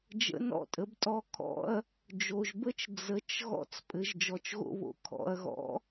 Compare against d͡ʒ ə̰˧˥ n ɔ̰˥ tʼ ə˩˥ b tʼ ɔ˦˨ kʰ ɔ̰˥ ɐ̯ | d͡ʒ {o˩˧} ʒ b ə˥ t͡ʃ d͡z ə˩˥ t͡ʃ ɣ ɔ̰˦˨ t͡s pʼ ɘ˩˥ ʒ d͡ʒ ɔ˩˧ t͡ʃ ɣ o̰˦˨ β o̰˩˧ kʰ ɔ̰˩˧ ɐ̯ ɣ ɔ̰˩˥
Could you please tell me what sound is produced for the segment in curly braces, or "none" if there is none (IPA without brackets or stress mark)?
o˩˧